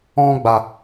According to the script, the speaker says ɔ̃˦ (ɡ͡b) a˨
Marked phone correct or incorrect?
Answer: correct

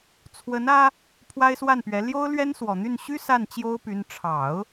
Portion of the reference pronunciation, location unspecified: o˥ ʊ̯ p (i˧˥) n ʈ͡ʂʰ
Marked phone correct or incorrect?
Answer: incorrect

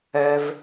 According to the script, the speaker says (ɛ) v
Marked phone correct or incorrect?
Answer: correct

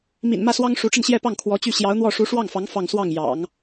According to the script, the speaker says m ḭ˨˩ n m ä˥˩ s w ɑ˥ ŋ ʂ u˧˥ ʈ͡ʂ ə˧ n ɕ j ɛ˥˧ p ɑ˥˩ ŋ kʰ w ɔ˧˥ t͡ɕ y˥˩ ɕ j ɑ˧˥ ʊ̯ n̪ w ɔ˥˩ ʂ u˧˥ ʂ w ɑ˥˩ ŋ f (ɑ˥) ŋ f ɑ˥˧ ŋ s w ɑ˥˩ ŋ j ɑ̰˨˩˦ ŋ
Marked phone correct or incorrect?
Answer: incorrect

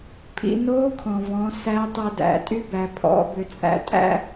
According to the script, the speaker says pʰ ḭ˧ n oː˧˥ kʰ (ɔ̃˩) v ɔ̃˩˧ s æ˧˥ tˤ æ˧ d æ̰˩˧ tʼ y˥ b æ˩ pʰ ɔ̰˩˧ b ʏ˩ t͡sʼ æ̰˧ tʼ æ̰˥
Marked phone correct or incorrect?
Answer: correct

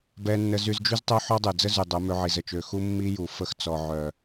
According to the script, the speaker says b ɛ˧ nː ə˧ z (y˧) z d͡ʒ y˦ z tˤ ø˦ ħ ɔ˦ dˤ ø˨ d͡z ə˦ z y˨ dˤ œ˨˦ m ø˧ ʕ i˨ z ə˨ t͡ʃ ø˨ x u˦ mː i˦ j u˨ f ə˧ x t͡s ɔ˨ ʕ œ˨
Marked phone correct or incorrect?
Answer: correct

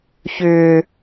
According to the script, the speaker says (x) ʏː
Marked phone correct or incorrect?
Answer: incorrect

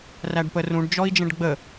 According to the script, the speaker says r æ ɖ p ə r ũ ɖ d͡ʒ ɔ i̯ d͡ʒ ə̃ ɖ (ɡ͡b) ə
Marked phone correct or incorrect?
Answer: correct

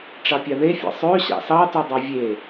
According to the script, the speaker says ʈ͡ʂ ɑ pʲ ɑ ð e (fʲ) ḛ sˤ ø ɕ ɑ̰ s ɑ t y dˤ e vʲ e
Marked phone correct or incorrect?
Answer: correct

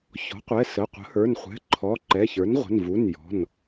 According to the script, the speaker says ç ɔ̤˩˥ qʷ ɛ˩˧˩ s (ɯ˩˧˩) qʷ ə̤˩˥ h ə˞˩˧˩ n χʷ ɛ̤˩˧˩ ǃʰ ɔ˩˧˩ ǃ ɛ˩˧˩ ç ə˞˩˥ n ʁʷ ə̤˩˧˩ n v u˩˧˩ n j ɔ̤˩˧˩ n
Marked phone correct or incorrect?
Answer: incorrect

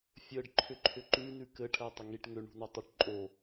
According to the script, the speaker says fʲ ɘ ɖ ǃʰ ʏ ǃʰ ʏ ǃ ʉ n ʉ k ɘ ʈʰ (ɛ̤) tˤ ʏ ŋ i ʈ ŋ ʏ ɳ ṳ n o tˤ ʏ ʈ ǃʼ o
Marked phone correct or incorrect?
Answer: incorrect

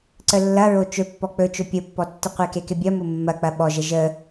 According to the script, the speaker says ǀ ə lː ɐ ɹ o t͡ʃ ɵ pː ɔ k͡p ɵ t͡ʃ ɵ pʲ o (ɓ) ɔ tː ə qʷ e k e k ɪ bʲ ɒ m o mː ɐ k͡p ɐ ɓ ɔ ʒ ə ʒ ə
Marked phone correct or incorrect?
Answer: incorrect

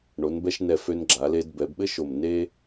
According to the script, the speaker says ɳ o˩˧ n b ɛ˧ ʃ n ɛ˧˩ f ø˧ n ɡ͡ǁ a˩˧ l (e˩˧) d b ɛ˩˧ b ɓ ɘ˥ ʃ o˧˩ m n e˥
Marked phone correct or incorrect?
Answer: incorrect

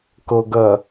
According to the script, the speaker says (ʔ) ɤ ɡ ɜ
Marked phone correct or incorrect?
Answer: incorrect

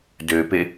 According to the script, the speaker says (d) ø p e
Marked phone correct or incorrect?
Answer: correct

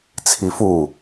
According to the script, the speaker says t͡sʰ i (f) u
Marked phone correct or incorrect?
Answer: correct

